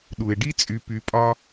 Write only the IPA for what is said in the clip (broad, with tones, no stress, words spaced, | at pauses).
ɗu˩e̯ɖi˥t͡sʼy˨ py˨pʼɒ˦